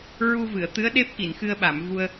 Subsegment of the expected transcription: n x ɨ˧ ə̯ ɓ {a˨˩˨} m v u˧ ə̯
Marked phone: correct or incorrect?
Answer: correct